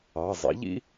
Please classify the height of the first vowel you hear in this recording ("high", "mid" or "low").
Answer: low